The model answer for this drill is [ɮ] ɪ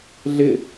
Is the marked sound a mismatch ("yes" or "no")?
no